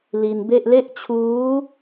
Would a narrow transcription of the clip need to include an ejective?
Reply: no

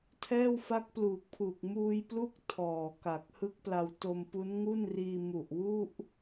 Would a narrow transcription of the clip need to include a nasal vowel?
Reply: no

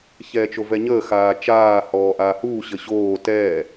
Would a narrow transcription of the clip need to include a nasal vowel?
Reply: no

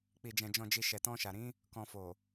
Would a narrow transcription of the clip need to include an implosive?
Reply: no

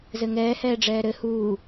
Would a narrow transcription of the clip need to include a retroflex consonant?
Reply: yes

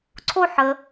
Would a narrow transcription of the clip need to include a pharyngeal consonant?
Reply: yes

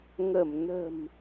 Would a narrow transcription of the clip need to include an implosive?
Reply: no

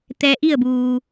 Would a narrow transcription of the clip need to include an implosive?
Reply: no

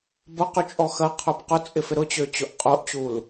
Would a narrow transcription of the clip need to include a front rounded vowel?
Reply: yes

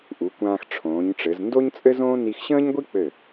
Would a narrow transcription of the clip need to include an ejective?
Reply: yes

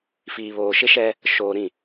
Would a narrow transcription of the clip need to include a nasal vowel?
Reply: yes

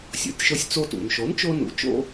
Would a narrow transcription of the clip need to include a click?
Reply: no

